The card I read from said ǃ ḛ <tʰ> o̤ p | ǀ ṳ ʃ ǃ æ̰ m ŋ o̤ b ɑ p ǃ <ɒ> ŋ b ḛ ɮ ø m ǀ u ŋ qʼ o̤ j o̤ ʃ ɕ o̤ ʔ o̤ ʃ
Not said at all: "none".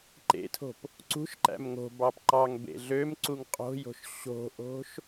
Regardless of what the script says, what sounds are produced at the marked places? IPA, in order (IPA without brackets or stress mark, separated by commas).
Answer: tʰ, ɑ